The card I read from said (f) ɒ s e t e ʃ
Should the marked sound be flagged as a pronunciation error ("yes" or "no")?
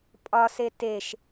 yes